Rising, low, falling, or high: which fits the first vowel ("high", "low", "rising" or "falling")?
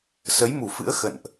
rising